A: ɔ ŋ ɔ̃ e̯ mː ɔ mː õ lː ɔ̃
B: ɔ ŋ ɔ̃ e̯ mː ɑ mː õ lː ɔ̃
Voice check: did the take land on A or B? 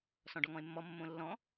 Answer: A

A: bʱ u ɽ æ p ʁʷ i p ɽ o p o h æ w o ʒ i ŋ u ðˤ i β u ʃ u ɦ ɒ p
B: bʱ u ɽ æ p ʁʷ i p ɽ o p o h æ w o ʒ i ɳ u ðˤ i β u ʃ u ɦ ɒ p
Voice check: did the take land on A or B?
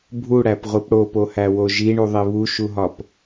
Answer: B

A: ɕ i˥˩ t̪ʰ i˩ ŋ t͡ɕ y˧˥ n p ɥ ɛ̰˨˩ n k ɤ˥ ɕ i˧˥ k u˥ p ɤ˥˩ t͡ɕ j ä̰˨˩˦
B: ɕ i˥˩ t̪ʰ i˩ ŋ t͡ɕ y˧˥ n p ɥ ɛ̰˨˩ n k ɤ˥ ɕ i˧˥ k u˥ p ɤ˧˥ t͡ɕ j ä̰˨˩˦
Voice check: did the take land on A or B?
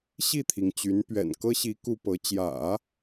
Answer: B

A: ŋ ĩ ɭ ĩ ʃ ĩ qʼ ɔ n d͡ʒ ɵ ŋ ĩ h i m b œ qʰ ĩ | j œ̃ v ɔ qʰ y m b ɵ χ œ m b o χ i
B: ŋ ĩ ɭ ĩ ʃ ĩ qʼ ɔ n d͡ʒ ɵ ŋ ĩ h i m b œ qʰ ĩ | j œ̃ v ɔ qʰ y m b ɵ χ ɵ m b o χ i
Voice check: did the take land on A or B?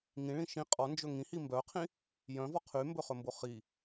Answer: B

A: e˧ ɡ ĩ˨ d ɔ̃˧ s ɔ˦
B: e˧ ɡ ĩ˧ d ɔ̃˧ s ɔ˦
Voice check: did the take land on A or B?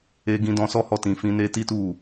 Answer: B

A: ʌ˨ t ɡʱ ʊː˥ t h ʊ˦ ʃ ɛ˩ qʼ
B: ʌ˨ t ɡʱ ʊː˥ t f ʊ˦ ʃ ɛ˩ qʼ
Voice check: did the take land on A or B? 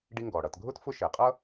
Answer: B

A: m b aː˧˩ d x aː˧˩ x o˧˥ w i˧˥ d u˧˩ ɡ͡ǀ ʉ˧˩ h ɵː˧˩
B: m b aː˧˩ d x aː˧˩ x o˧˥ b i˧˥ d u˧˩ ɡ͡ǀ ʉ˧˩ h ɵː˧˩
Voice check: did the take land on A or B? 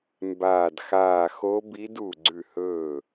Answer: B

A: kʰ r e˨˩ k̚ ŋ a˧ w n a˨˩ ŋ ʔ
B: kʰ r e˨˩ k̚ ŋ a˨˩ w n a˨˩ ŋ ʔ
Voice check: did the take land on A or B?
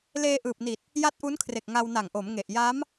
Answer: A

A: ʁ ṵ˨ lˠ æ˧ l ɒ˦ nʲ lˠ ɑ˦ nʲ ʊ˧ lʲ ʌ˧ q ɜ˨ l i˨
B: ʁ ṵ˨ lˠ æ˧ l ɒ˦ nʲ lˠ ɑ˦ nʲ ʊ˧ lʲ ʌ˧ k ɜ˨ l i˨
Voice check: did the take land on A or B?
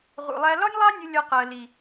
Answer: A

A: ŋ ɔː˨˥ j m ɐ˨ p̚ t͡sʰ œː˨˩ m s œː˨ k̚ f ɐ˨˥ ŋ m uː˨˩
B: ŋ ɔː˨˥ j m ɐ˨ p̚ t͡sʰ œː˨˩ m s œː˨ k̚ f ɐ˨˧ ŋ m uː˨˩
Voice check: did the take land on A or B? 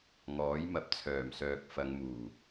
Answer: B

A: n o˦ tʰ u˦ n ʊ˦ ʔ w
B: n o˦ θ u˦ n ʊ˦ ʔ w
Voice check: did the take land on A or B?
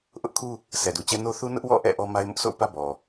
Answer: B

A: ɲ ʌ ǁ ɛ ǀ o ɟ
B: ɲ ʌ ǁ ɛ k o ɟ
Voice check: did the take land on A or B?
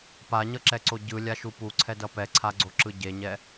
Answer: A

